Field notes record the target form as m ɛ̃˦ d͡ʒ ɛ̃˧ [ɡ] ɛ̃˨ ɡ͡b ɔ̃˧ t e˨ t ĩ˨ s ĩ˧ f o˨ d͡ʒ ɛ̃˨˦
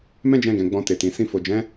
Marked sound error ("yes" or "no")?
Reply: no